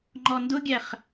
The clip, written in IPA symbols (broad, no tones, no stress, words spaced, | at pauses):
ŋ͡ǃɔndʊɡʲæχ